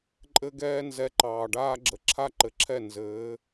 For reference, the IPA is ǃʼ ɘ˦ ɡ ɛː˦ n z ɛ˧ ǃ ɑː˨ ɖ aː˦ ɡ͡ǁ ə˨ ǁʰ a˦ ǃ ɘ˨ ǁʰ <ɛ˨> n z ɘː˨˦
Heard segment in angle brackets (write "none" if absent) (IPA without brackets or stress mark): ɛ˦˨